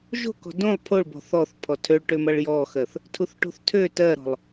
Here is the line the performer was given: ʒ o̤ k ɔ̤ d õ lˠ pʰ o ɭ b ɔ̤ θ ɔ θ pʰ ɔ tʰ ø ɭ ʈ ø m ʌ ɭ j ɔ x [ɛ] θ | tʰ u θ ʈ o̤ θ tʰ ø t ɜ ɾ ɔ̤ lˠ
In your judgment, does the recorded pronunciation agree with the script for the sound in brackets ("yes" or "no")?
no